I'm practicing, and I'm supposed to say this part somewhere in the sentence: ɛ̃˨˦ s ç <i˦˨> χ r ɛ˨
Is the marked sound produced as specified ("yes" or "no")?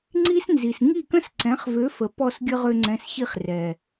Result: yes